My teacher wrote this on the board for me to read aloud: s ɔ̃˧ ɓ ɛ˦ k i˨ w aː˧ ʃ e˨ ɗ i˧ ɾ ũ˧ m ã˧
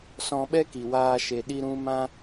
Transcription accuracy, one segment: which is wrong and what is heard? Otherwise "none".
none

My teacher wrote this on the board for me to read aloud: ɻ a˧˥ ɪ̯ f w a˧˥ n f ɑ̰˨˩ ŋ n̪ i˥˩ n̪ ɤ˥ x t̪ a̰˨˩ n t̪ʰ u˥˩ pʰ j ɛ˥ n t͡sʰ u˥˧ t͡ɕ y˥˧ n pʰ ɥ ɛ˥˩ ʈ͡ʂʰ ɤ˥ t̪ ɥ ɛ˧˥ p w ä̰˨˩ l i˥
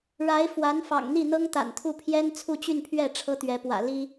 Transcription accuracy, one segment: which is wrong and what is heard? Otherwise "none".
x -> ŋ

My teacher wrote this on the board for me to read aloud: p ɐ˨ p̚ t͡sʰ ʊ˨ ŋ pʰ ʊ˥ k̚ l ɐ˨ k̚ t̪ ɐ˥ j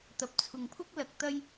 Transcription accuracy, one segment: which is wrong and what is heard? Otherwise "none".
p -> t̪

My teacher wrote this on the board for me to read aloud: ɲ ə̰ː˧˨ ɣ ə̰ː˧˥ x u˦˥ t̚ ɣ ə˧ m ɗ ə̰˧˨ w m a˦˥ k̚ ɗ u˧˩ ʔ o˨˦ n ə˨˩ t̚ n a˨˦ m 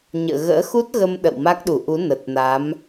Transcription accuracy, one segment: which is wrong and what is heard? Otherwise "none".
o˨˦ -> u˨˦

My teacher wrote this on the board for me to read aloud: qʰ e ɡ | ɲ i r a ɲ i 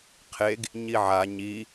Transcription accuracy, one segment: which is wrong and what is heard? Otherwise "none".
r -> ʕ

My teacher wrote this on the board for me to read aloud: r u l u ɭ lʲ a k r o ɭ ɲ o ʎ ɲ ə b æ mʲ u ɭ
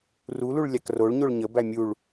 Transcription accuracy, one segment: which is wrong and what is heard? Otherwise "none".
ʎ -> ɭ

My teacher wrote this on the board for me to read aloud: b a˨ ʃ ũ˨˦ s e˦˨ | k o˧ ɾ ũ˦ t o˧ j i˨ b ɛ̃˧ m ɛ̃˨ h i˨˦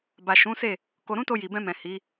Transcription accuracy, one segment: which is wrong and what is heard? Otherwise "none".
none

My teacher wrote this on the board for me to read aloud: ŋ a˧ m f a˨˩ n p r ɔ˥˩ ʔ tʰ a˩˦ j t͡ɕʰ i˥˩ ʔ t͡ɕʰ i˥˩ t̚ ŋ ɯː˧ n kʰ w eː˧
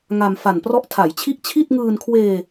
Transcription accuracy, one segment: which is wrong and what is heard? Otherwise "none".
none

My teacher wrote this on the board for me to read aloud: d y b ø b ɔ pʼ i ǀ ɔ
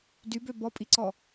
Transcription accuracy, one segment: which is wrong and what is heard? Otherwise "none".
none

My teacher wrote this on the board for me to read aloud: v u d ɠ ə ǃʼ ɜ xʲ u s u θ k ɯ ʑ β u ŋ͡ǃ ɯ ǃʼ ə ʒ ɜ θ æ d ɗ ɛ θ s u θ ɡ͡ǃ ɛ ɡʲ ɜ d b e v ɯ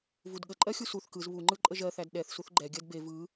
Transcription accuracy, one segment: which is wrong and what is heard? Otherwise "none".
ʑ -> z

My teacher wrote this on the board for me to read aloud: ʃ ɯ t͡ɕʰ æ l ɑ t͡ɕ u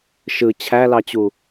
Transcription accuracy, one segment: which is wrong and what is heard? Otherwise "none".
none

